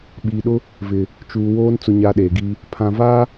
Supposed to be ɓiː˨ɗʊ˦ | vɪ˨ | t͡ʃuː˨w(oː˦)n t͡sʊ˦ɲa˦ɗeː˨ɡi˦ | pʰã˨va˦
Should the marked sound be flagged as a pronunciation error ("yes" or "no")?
no